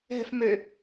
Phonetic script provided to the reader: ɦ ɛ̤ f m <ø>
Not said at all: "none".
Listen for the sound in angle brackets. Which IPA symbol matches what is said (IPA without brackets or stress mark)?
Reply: ø